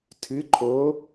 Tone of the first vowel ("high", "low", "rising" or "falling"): rising